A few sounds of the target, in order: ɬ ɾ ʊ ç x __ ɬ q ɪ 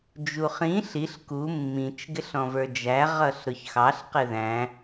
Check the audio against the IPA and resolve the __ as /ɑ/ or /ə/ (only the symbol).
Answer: ɑ